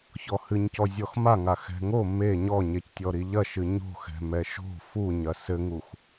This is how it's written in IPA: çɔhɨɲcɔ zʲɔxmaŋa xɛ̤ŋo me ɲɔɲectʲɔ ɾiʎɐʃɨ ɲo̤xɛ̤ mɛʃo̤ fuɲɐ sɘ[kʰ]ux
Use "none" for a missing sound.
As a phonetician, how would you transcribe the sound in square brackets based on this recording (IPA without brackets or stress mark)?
ŋ